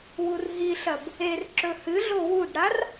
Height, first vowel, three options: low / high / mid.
high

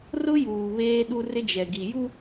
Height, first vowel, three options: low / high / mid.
high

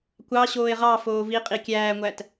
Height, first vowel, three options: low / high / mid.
low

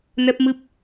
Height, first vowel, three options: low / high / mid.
mid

